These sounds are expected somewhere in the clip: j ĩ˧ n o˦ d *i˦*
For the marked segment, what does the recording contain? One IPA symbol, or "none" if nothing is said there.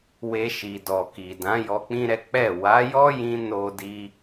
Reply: i˦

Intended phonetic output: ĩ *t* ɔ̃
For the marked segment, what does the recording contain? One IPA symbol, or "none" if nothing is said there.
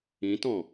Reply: t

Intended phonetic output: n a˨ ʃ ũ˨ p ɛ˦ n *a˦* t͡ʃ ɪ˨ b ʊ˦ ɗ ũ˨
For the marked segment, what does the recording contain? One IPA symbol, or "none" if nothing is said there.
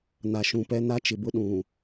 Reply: a˦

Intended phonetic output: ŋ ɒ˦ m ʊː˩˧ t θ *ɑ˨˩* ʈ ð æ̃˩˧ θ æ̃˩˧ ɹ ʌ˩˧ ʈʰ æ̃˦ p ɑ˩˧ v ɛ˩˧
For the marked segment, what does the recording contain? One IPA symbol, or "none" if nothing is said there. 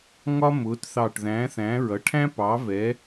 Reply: ɑ˨˩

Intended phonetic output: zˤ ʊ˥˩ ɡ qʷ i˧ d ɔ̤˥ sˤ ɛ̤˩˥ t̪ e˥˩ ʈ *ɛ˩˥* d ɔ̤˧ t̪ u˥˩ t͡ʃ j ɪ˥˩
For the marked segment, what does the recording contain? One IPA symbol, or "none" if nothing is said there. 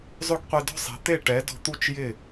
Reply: ɛ˩˥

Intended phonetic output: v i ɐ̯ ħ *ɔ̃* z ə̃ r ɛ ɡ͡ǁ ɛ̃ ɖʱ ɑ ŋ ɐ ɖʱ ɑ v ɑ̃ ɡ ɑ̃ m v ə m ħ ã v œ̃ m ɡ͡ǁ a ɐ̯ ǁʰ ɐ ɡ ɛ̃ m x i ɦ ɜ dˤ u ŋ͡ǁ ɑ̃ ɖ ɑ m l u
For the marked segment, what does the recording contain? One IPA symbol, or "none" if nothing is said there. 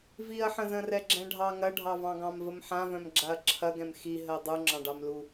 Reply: ə̃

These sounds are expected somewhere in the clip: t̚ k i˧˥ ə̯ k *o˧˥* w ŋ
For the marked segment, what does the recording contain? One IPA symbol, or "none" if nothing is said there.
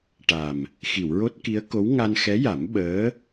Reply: o˧˥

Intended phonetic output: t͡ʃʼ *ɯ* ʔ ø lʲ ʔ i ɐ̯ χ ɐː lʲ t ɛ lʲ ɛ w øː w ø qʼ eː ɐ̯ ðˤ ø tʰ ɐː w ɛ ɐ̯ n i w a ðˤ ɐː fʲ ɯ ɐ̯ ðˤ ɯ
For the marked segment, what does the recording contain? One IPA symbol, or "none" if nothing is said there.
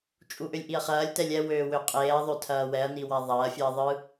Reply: u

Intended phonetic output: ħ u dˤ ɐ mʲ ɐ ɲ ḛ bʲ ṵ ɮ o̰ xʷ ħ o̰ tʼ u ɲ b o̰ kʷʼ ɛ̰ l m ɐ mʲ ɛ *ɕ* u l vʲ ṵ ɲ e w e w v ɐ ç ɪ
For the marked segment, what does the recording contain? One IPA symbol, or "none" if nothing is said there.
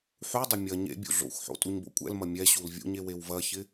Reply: ɕ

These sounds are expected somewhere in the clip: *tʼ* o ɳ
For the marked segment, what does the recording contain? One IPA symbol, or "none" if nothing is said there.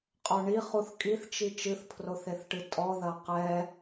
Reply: qʼ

